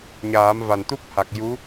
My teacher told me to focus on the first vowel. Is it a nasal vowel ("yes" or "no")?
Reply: no